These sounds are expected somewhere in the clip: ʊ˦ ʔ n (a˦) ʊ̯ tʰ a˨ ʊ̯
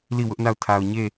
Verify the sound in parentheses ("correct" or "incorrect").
incorrect